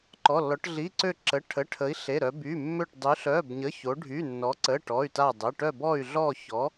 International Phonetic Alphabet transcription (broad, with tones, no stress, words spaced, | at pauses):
ǃɔ˧˥˧lːɔ˧˥ʈ ɮi˧˥˧ǀø˥˧ ǁə˧˥˧ʈʰə˧˥˧ʈʰə˧˥i̯ ɬe˧˥˧ɾœ˧˥ by˧˥˧mːø˥˧ʈ dˤy˧˥ɬœ˧˥˧bɲə˧˥˧ ço˧˥ɖʱy˧˥˧nːɔ˧˥ǀə˧˥˧ ʈɔ˧˥˧y̯ta˥˧dˤə˧˥˧ ʈœ˥˧bɔ˥˧y̯ɮɔ˥˧çɔ˧˥